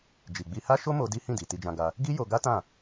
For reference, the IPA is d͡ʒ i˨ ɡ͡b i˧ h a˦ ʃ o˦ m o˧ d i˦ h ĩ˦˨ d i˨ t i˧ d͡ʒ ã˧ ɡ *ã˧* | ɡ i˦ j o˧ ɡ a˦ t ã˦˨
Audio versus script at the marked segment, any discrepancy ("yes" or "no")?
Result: yes